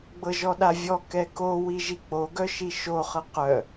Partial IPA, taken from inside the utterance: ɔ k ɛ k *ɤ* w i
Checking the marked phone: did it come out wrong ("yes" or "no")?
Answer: yes